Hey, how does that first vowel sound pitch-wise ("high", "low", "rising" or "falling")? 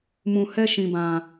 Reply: low